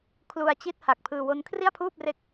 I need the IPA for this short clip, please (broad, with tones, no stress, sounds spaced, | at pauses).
kʰ l u˧ a̯ t͡ɕ i˥˩ t̚ h a˨˩ k̚ pʰ ɯː˧ w o˦˥ n kʰ r i˥˩ a̯ pʰ uː˥˩ p̚ r e˦˥ k̚